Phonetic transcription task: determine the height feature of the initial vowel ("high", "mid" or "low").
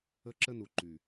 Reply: mid